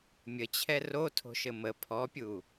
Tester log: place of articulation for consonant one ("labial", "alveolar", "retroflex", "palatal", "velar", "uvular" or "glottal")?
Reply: labial